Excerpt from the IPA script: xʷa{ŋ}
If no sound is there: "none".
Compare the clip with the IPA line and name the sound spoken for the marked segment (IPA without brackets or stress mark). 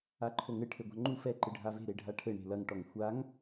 ŋ